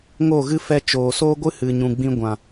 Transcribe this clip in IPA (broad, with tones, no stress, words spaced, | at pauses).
ŋo˦˨ɣɨ˦ fɛ˧t͡ʃoː˨soː˦ɡʷɨ˦ hɨ˨ɲũ˨ɡ͡bĩ˧ ɡʷã˨